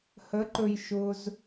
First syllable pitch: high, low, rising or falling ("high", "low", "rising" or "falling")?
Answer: rising